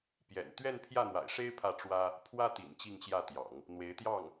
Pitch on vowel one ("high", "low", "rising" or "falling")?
low